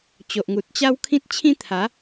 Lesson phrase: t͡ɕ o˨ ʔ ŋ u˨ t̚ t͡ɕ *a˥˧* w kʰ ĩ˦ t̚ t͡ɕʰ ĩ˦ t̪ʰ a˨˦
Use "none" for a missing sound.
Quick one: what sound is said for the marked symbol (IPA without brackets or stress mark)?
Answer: a˦